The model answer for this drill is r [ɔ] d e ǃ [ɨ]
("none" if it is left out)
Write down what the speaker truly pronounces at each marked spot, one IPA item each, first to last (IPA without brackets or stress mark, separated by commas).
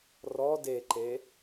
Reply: ɔ, e